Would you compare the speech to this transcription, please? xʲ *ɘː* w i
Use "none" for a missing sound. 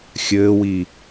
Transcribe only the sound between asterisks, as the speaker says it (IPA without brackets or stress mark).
ɘː